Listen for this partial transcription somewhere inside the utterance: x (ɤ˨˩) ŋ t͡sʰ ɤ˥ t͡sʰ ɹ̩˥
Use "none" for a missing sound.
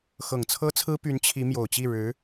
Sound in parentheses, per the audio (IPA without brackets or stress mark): ɤ˨˩